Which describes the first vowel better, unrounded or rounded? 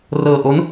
unrounded